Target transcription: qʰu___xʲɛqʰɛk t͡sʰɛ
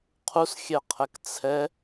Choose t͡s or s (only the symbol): s